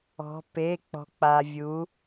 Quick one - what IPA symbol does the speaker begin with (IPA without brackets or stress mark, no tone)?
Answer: ɔ̤